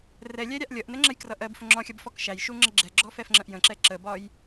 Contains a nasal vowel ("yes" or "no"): yes